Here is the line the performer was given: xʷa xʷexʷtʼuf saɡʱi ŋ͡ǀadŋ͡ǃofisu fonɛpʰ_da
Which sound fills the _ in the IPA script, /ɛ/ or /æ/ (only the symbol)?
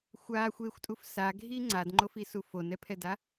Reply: ɛ